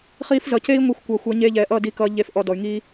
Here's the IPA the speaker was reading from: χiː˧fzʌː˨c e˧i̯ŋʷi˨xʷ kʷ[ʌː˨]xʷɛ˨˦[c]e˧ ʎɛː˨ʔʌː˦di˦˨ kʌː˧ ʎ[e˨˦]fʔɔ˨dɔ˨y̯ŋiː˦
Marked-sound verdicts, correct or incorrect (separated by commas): correct, incorrect, correct